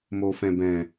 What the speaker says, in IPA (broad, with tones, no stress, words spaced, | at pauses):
moː˨fɛ̃˨bɛ̃˨